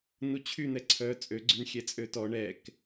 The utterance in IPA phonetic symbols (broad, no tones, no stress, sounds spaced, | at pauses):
n u t͡ɕʰ y n̪ ɛ ǀʰ œ t͡sʼ ø ɡ͡ǀ y n xʲ ɛ t͡sʼ ø t ɔ ɳ ɛ k